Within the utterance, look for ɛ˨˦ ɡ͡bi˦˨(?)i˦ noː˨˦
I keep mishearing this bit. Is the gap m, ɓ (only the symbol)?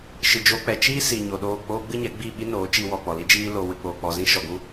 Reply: ɓ